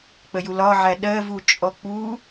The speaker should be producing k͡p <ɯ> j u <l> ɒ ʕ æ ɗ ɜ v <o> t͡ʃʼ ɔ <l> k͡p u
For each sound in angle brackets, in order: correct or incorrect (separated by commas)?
incorrect, correct, incorrect, incorrect